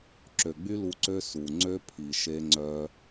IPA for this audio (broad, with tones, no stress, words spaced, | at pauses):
ǁø˨ɡ͡by˦lu˧ǀø˦ su˨ ŋ͡ǀø˦ pʰi˨ʃe˧ŋ͡ǀœ˧